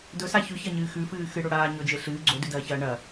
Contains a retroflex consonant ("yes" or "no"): yes